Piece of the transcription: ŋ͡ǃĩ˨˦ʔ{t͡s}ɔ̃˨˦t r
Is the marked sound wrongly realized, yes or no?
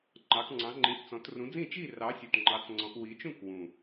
no